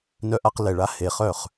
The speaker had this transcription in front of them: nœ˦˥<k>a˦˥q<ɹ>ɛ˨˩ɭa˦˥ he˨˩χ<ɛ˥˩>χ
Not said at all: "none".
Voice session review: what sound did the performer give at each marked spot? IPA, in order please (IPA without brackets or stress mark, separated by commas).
ʔ, l, œ˥˩